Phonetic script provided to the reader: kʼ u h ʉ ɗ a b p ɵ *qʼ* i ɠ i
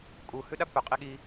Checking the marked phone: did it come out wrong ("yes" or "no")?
no